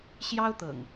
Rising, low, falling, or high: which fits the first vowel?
high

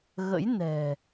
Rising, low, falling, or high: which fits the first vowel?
rising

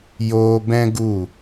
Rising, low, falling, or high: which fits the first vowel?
high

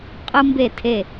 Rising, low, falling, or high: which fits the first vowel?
high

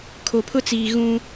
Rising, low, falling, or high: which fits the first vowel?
low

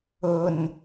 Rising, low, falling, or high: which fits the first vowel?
low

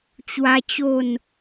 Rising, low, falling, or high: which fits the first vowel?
high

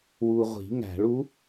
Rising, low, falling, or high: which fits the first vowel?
low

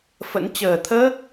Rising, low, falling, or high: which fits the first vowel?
rising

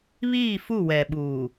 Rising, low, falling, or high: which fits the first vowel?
falling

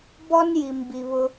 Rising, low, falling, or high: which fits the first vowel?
high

